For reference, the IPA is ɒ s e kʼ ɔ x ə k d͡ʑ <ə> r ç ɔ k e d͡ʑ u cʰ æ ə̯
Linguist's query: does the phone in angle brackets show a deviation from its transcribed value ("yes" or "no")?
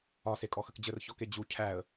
no